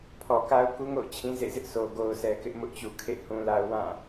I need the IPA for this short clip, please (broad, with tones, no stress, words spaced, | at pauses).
pʰɔ˨ka˦ʊ̯ku˦ŋo̰˦˨ʊ̯ t͡ɕʰĩ˦zḛ˦˨ zɪ˦ʔsʰo˨ ɡo˦ʊ̯sɛ˦ kɪ˦ʔ mʊ˦ʔt͡ɕu˨kʰḛ˦˨ hũ˦la˦ʊ̯ wã˦˨